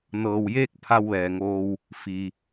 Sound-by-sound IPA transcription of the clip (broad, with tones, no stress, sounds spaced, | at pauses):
n ɤː˩ w j eː˧ k̚ pʰ a˧ w ʋ ɛː˩ ŋ oː˧ w | f i˩